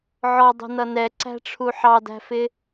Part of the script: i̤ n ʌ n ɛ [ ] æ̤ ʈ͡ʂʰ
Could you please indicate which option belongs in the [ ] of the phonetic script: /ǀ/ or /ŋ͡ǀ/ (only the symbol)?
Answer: ǀ